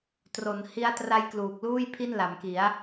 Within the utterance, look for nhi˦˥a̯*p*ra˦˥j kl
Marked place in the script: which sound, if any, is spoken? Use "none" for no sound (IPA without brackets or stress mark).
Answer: t